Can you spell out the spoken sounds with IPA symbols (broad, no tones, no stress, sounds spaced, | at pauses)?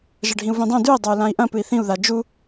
ʒ ɐ ɖʱ ĩ u̯ v ĩ dˤ õ d ʉ i̯ dˤ ɐ u̯ l ã i̯ ʔ ɐ̃ p ɨ i̯ θ ĩ u̯ ð a d͡ʒ u